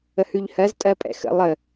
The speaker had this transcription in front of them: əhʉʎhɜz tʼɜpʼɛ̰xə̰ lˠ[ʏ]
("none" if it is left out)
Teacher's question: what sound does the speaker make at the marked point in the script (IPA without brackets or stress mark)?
ə